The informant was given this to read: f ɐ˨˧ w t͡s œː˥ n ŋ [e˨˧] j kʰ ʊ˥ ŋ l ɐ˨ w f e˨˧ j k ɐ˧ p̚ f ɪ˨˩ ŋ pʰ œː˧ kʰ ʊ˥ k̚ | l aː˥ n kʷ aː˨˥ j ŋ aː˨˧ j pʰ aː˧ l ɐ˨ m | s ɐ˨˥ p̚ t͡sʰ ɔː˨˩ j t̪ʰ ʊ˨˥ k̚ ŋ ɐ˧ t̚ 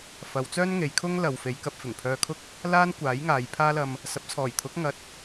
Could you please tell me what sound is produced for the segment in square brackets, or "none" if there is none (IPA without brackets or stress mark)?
e˨˧